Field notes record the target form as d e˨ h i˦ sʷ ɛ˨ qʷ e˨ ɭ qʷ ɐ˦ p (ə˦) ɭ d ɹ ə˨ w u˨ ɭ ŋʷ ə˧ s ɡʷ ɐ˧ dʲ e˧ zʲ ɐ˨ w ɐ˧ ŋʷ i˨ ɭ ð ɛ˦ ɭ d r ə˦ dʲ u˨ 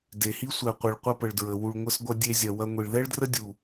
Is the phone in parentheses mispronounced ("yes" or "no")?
yes